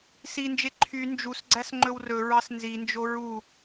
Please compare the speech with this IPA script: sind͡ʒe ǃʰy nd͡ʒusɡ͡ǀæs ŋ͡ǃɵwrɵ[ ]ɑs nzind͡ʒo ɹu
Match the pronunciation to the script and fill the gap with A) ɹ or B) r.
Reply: A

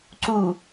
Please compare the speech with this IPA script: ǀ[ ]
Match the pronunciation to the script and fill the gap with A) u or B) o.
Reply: A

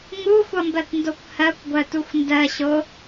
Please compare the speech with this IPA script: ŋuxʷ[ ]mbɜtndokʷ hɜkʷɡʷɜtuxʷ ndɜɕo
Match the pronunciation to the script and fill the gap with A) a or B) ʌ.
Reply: B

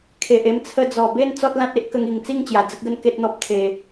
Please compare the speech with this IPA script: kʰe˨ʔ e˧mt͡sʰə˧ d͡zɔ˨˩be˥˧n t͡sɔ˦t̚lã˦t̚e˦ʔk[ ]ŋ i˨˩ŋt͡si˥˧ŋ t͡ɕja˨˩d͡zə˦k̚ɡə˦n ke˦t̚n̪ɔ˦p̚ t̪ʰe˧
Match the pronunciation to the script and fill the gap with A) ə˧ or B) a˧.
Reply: A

